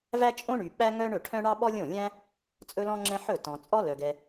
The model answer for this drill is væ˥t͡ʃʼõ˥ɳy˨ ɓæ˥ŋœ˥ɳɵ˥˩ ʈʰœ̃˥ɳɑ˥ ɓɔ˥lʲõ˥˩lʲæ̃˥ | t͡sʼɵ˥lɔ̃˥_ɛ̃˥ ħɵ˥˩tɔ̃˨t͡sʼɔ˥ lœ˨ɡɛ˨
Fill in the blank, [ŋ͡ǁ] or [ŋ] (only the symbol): ŋ͡ǁ